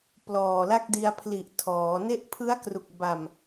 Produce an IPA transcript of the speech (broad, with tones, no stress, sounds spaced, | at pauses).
p l ɔː˨˩ l a˥˩ k̚ d i˧ a̯ pʰ l i˨˩ ʔ tʰ ɔː˩˦ n e˥˩ ʔ pʰ ɯ˦˥ a̯ k r u˨˩ k̚ b a˨˩ m